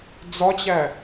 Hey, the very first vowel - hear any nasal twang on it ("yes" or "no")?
no